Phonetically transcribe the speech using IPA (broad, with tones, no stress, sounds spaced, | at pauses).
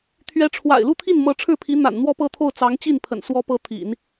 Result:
t̪ʰ ɥ ɛ˧˥ ʈ͡ʂʰ w a̰˨˩ ɪ̯ l u˥˧ t̪ʰ i˥˩ n m ɤ˧˥ ʈ͡ʂʰ ɻ̩˥˩ pʰ i˧˥ n̪ a̰˨˩ n n̪ w ɔ˥˧ p ɤ˥˧ t̪ʰ o˥˩ ʊ̯ t͡s ɑ˧˥ ŋ t͡ɕ i˥˩ n pʰ ə̰˨˩ n s w ɔ˧˥ p ɤ˧˥ t̪ʰ ḭ˨˩˦ n